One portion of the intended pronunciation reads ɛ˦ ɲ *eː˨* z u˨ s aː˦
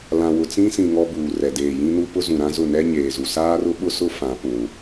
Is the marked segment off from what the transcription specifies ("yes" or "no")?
no